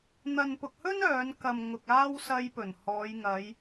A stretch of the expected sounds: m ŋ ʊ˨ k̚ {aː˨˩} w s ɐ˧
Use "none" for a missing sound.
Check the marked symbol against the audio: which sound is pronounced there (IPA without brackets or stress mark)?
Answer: aː˥